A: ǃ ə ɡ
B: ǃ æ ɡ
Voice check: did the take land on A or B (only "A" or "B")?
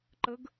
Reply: A